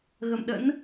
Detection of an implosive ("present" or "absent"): present